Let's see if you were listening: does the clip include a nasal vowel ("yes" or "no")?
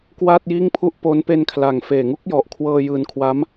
no